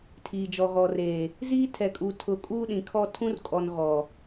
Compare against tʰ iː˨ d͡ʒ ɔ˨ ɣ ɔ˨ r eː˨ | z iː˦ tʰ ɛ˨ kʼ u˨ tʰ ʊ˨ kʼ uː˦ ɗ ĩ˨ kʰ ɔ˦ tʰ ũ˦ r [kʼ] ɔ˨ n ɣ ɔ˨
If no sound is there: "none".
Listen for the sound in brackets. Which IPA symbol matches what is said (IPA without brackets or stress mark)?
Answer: kʼ